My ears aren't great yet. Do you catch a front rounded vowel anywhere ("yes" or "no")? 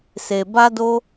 no